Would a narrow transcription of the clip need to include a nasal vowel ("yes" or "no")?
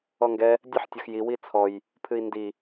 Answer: no